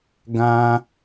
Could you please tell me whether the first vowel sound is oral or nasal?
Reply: nasal